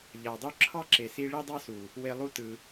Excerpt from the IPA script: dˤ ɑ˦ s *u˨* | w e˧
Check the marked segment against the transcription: correct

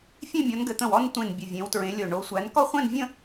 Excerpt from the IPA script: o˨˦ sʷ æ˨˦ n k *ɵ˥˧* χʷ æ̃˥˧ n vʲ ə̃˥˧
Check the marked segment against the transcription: incorrect: ɔ˥˧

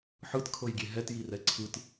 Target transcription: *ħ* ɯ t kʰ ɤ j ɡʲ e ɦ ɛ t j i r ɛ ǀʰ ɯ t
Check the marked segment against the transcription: correct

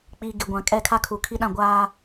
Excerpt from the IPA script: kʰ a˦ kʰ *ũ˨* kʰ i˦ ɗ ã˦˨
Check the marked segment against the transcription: incorrect: u˨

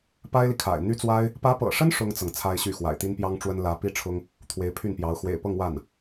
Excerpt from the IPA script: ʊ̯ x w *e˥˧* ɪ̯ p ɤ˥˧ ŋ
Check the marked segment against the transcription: incorrect: ḛ˨˩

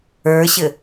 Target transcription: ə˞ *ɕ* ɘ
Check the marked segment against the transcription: correct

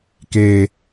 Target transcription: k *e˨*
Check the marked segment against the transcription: incorrect: eː˨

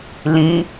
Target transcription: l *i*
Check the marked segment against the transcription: incorrect: ĩ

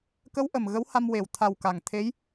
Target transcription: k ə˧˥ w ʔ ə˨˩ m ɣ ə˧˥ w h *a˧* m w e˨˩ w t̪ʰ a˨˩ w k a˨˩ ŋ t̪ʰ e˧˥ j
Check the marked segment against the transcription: correct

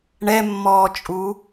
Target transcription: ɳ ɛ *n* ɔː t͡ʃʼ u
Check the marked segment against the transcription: incorrect: mː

